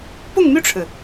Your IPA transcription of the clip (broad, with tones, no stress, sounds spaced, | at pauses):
p ʊ˥˧ ŋ m y˥˩ ʈ͡ʂʰ ɻ̩˩